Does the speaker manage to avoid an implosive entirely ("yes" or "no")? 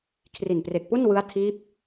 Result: yes